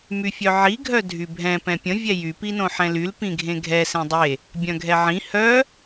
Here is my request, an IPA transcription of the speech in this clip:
myfʲœʕi ɡʱœdʱybʱɛ̃ pɛ̃pʲə̃ vʲɛjy pinõħɛ̃lyl pĩɡʱẽɡʱɛ sẽdˤe | bʲœ̃ɡʱɛʕĩ hœ

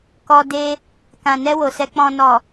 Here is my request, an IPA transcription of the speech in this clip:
kɔ˧ de˧ | kã˨nɛ˧ wo˨sɛ˧ k͡pɔ̃˨nɔ˨

